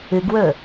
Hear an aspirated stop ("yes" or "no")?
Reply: no